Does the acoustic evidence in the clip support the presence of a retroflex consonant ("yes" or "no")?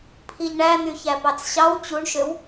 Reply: yes